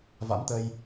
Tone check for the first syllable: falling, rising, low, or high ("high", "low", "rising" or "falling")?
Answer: rising